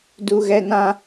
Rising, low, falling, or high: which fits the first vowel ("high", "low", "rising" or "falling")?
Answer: high